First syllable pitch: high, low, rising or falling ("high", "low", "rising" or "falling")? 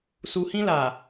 low